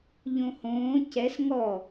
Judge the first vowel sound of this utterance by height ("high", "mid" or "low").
mid